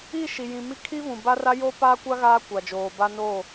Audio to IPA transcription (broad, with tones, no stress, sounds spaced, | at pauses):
i˦˨ ʃ i˨ j ĩ˨ m i˦ kʰ i˦ v ũ˨ b a˦ r a˦ j o˦ p aː˦ kʷ a˦ ɣ aː˦ kʷ a˨ d͡ʒ oː˨ b a˦ n o˦˨